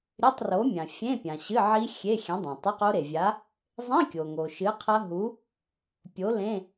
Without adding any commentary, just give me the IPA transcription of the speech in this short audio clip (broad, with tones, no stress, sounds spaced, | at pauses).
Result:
ɾʲ ɨ˧˥˧ tˤ r o˨˥ mʲ ã˩ fʲ ẽ˧˥˧ pʲ ã˩ ɕ ɨ˧˥˧ ʕ i˦˥ xʲ e˧˥˧ xʲ ẽ˨˥ dˤ ẽ˩ tˤ ɨ˧˥˧ q o˦˥ ɾ e˩ vʲ a˨˥ | zˤ ĩ˧˥˧ kʲ o˩ ŋ o˩ ʃ ɨ˨˥ qʰ ɐ˦˥ ɦ u˨˥ | pʲ o˨˥ l ẽ˧˥˧